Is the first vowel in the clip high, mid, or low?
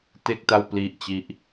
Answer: mid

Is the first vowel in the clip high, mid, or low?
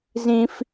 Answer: high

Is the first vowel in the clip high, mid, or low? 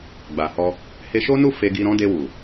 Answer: low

